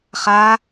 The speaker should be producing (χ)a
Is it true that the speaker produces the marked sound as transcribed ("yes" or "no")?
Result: yes